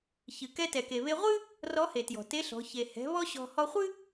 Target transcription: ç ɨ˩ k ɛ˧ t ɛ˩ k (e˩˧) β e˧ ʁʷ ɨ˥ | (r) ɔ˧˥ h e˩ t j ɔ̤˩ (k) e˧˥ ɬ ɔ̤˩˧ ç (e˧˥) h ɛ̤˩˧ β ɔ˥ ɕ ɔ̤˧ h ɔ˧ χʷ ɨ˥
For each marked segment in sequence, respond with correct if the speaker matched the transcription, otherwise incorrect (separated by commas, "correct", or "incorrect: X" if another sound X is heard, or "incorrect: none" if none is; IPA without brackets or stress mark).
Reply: incorrect: e˩, correct, incorrect: t, incorrect: e˩